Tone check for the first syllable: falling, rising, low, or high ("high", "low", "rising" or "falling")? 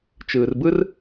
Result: low